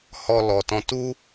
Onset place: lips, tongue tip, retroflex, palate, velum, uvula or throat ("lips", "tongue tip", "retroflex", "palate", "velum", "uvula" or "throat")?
throat